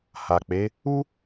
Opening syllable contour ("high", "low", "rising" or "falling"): low